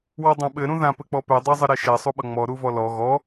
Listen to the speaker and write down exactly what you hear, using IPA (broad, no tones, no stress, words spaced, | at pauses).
wɔdˤãɓɘ ɾũðã pɘk͡pɔpɛ dˤezˤəɾeʃɛ sˤuɓʌŋ͡mɔ ɾuvɔlɔ ɣɔ